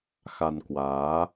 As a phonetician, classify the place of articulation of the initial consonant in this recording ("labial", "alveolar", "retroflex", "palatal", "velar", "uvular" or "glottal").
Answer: velar